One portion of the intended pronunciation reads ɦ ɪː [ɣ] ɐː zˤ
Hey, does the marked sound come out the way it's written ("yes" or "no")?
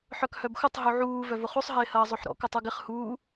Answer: no